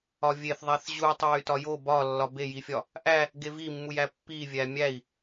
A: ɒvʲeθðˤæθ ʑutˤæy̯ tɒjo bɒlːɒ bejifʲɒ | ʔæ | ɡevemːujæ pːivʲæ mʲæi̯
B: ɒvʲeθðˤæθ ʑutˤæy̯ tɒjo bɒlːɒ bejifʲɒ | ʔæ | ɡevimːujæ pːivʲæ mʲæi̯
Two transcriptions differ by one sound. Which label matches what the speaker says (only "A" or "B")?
B